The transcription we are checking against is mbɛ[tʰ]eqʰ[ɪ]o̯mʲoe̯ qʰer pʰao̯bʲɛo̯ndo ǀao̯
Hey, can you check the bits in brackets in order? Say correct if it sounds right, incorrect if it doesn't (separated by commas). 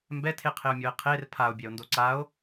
correct, correct